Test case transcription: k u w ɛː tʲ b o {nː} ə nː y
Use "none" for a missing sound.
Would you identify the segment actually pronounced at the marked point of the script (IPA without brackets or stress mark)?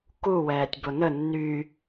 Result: n